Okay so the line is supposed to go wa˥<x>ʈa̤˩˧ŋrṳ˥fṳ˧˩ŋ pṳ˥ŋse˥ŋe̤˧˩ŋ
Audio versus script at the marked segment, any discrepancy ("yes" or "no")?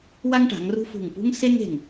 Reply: yes